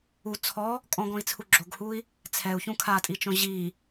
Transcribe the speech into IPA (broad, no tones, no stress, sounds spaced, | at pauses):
u t͡sʰ ɔ | kʼ ɔ̃ ɡ ɔ̃ i̯ t͡sʰ u ɡ͡ǁ o ɡ h u i̯ | t͡sʰ ɛ u̯ ç ũ kʰ a tʼ i t͡ʃ õ ʑ i